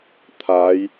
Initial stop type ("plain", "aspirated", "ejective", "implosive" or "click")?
aspirated